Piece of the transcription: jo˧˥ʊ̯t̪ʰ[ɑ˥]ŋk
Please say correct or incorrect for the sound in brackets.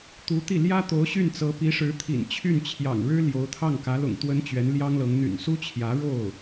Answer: incorrect